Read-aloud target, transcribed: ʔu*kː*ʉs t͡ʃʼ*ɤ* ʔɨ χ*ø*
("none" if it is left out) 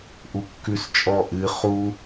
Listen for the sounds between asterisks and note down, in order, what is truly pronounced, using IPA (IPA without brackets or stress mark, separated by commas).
kː, ɔ, u